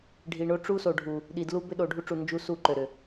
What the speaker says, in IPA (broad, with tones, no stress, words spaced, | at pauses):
ɖʱi˨ɳo˦ʈ͡ʂu˦so˨ ɖʱu˨ | ɗi˨dlu˦ bʏ˦ɗo˨ɖʱu˦ʈ͡ʂu˨ nd͡ʒu˦ su˦˨ǃø˨ɾʏ˨